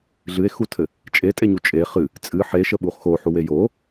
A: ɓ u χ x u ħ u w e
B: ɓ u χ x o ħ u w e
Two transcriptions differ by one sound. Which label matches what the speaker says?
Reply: B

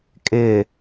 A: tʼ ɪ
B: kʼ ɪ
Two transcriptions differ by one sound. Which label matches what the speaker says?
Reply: B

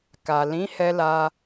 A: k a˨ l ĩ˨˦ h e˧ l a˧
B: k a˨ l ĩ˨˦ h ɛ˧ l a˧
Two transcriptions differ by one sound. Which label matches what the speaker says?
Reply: B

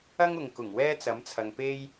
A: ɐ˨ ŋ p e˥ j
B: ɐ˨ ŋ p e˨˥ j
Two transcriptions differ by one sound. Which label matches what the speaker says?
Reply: A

